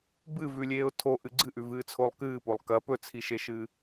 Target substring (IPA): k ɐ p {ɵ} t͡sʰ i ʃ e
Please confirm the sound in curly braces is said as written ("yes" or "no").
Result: yes